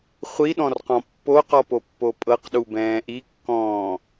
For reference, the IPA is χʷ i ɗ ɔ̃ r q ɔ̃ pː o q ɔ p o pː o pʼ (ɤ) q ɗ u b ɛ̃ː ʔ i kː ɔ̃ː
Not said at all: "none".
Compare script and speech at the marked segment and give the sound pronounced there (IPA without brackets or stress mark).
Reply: ɤ